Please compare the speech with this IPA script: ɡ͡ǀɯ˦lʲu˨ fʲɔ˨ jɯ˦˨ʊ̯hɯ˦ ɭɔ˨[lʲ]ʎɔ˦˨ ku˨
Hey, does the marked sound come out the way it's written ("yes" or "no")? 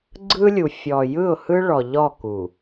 no